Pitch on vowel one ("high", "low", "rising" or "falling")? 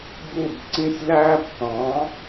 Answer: falling